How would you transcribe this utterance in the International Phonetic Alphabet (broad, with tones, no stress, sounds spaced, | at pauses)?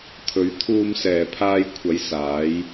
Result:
t̪ʰ ɵ˨˧ ɥ t̪ʰ uː˧ m s ɛː˨ pʰ aː˧ j kʷʰ ɐ˨˧ j s aː˨˧ j